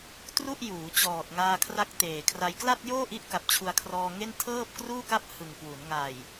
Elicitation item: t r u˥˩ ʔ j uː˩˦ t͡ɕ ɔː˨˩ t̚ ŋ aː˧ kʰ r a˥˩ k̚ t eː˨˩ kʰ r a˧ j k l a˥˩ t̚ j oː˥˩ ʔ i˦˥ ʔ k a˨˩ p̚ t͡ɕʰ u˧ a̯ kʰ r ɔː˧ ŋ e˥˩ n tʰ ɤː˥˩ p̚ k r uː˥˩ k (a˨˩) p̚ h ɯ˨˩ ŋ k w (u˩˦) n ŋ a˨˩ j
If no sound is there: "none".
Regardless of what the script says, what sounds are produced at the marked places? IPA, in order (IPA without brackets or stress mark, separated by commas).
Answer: a˥˩, u˩˦